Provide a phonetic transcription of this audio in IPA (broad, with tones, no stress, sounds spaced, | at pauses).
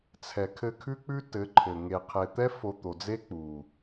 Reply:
t͡sʰ ɛ˨ kʰ ɘ˧ kʰ ʉ˦ k͡p ʉ˦ t ɘ˨˦ ǃʰ ɘ˨ ŋ e˨ qʰ e˨ t̪ ɛ˦ f o˧ t̪ o˨ d͡z e˦ k͡p u˨